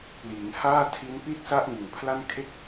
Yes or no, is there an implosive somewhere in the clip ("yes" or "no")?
no